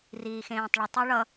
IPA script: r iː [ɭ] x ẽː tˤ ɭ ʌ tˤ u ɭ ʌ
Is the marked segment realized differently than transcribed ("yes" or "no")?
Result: yes